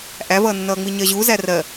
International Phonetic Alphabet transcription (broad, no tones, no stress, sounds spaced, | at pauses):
ʔ æ v ʌː nː ʌː ŋ͡m i ɲ ɜ ʑ u z æ r ɜ